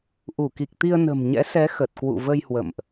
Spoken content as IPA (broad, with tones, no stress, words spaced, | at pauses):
ʔu˧˩ki˨˩k̚t̪i˧ə̯ nə̤˨˩mɲɛ̰˧˥sɛ˨˦ xə˨˩t̚kwṵ˧˨və˧j hwə̰˧˨mʔ